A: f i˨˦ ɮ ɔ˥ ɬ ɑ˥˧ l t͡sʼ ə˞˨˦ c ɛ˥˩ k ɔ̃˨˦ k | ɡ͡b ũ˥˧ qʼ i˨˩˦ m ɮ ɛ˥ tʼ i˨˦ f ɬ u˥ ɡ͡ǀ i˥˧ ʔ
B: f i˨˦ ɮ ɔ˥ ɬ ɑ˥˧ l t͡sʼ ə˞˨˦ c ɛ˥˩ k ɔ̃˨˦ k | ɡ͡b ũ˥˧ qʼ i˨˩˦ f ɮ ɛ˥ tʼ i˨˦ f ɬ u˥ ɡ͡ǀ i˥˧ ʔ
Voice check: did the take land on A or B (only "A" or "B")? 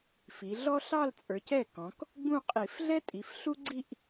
B